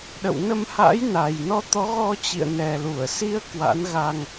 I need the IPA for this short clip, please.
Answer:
ɗ ə̰˧˨ w n ə˧ m h a̰˧˥ j n a˨˩ j n ɔ˧ t̪ ɔ˨˦ ɣ ɔ˧ t͡ɕ ḭ˧˨ ə̯ n ɛ˨˩ l u˧˩ ə̯ s i˨˦ ə̯ k w a̰˧˥ n ɣ a˧ ŋ

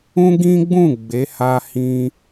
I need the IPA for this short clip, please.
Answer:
ũ˦ ɡ ĩ˦ ɡ͡b ũ˦˨ ɡ͡b e˨˦ h a˧ h ĩ˧

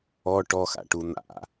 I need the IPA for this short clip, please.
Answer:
ɔ ʈ ɔ x a̰ ʈ u n̪ a̰

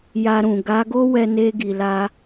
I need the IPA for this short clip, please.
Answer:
j a˧ ɾ ũ˨ ɡ a˨˦ ɡ o˦ w ɛ˧ n e˧ ɡ i˨ l a˧

